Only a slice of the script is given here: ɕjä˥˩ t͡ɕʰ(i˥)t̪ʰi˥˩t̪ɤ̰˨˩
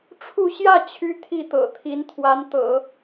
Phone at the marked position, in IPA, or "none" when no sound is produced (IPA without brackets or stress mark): y˥